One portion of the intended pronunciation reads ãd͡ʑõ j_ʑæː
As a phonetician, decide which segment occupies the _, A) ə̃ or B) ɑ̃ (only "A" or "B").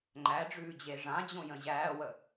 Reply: A